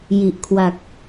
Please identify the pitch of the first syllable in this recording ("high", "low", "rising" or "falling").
low